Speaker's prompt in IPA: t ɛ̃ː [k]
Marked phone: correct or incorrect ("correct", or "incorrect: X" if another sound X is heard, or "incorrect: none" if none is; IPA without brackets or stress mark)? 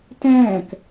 correct